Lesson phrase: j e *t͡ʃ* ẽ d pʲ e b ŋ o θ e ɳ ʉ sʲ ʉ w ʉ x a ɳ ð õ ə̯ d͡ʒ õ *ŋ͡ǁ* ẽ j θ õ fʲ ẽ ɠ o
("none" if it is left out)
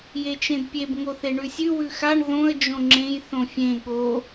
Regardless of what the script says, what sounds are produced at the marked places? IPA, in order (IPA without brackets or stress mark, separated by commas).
t͡ʃ, ŋ͡ǁ